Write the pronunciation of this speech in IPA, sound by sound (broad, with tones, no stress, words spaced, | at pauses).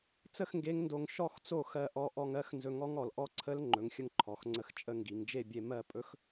t͡sə˥˨xŋɡe˧˥ŋndo˧ŋ ʃɔ˥˨xt͡so˥˨ xɜ˧ʔɔ˧ ʔɔ˧ŋɜ˧˥x nzɵ˧ŋɔ˧˥ŋɔ˩˧l ʔɔ˧˥ǀʰə˧˥l ŋ͡ǃɵ˩˧ŋxʲə˧ŋ ǃʰɔ˩˧xŋ͡ǀə˧x t͡ʃʼə˧ ŋɡi˩˧ŋd͡ʒe˥˨bʲe˧mɜ˥˨ pʼɵ˧˥x